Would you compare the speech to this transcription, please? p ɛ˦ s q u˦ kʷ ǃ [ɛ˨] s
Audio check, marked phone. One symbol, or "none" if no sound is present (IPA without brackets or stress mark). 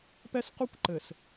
ɘ˨